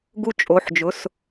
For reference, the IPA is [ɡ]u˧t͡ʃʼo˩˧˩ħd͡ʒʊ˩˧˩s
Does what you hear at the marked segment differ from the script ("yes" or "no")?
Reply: no